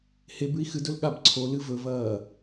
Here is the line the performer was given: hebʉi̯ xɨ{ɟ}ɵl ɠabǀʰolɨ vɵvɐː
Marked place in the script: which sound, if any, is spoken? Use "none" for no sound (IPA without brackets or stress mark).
d